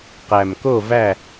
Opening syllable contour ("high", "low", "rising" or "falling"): low